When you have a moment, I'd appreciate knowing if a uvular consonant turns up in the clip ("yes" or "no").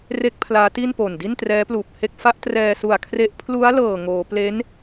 no